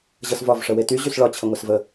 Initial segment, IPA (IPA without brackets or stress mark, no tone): ʑ